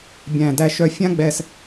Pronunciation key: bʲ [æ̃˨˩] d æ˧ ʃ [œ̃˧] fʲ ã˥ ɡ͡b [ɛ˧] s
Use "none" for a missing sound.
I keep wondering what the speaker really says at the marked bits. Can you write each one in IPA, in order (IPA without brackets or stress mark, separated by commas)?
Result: æ̃˨˩, œ˧, ɛ˧